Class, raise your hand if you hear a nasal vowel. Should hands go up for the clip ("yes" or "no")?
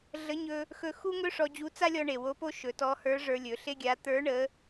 no